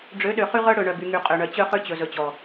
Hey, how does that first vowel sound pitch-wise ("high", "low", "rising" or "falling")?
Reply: rising